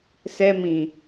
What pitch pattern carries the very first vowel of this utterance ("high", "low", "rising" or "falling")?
high